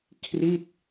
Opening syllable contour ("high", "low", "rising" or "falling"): falling